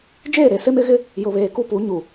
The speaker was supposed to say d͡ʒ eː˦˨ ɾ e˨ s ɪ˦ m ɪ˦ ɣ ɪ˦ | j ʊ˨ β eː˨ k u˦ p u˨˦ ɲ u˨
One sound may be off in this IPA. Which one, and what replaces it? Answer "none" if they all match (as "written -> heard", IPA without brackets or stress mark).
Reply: none